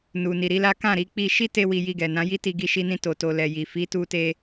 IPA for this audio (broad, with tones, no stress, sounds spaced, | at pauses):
n u˨ n i˨ ɾ i˨˦ l a˦ k ã˦˨ ɾ i˧ k͡p i˧ ʃ i˦ t e˧ w i˨ j i˧ ɡ ɛ˨ n ã˨˦ j i˦ t i˧ ɡ i˧ ʃ i˧ n ĩ˧ t o˨ t o˨ l ɛ˨ j i˨ f i˨˦ t u˧ t e˧